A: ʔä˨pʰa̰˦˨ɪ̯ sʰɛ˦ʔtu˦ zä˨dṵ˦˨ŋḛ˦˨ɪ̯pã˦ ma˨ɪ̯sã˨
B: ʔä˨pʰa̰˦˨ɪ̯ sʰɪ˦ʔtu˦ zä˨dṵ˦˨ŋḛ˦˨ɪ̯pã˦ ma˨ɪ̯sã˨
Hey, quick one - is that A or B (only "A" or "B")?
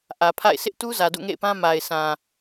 B